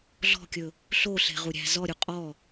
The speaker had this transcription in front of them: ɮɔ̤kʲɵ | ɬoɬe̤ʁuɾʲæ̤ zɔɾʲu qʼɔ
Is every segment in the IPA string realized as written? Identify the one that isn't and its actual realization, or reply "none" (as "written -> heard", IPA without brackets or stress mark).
none